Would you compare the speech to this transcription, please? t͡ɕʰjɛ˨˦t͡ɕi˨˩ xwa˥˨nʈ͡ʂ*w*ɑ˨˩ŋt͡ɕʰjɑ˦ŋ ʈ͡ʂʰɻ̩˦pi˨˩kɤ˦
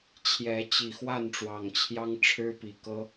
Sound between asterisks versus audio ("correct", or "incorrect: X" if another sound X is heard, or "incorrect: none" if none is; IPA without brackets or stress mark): correct